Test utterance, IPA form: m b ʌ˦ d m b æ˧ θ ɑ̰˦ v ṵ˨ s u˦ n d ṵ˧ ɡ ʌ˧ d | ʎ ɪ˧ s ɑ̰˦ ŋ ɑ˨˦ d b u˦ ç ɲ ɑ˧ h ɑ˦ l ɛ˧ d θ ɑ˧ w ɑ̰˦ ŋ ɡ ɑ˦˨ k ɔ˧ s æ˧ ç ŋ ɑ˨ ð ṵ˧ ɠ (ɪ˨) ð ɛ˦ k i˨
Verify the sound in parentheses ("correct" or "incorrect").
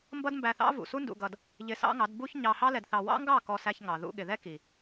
correct